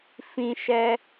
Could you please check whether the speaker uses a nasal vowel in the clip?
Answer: yes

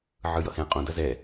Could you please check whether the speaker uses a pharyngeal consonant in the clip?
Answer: yes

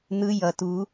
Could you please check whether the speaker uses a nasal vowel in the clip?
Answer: no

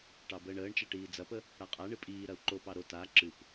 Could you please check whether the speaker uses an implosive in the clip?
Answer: no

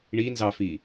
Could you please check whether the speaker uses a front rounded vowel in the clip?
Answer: no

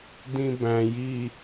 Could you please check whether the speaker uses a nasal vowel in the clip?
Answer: yes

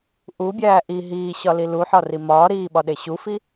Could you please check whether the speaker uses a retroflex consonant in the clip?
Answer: no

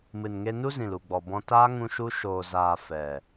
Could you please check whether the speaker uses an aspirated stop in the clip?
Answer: no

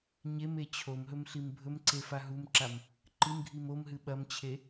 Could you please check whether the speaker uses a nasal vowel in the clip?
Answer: no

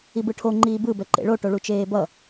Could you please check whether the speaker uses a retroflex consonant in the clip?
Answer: yes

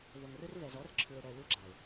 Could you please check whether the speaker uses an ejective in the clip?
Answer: no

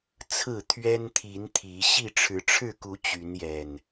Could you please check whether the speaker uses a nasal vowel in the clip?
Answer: no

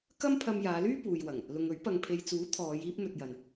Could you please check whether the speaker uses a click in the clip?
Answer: no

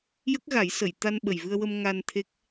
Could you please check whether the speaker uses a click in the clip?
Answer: no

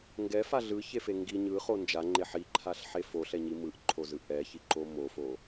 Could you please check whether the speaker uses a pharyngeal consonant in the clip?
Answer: yes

